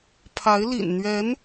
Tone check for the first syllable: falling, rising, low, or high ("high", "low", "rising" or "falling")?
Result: rising